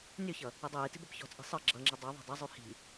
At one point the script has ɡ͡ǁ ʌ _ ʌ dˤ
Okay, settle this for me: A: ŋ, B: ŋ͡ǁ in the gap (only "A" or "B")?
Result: B